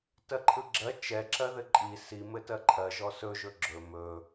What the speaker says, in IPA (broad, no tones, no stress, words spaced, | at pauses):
tɜǃʰɯɡ͡ǁɜ t͡ʃɛ ǁɜðɘǃʼi si mɘtɜǃʰɜ ʒɔsɵ ʒɵɡ͡ǁɵ mɵ